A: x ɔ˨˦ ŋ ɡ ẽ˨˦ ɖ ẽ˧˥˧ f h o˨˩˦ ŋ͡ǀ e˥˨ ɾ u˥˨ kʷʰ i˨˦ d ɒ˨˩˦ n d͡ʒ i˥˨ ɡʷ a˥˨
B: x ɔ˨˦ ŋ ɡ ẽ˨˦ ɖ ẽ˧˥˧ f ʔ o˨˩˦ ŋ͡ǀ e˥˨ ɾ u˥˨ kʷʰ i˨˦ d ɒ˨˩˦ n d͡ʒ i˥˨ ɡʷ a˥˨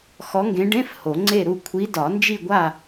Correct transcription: A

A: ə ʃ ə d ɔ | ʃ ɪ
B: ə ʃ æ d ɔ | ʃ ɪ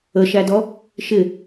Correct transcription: B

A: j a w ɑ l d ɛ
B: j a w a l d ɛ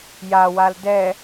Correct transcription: B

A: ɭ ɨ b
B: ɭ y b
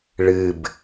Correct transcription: A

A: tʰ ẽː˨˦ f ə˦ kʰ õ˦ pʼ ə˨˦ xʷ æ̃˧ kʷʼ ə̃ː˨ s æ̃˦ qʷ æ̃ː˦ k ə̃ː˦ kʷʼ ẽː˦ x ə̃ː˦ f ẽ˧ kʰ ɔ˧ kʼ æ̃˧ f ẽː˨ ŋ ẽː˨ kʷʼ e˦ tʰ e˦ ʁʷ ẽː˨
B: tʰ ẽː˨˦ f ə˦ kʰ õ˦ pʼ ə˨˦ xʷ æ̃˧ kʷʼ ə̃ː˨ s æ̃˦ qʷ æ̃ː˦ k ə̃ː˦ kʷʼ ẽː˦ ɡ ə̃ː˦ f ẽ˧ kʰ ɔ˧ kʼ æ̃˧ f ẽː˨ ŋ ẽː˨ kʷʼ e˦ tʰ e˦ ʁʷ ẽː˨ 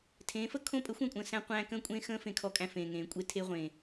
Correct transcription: A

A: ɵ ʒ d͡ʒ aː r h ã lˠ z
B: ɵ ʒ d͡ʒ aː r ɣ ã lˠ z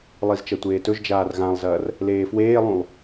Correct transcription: B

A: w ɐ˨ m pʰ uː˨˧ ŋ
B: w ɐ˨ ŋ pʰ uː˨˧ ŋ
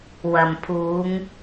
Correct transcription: A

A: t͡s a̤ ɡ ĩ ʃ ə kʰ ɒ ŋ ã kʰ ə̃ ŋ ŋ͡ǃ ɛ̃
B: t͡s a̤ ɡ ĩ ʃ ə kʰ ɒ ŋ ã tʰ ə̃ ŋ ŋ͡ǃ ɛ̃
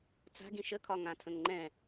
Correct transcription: B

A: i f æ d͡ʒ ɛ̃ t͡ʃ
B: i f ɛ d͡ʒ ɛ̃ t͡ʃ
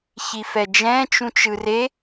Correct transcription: B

